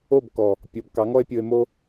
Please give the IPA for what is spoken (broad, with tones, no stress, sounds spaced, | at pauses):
o˦˨ b k ɔ˨ | pʲ ɔ˨˦ b k ɑ˨˦ ŋ ɔ˦ e̯ pʲ o˧ e̯ m o˧